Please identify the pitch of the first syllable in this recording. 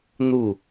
falling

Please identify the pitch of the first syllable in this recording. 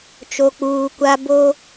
low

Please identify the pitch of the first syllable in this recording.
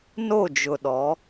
falling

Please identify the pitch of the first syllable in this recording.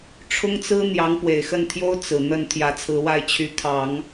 high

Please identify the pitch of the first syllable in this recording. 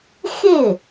falling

